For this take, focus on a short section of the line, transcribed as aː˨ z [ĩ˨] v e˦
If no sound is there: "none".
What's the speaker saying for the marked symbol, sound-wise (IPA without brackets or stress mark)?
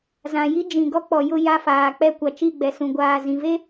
ĩ˨